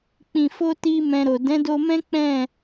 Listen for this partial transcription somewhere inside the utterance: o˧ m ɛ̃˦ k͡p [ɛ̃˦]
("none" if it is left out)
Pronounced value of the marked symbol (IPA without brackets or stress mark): ɛ̃˦˨